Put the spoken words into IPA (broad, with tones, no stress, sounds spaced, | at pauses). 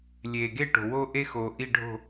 lʲ eː˩ ɡ e˥˩ ʈ o̤˩ w o˥ ʔ e˥ x oː˩ ʔ i˥˩ ɖʱ o̤˥˩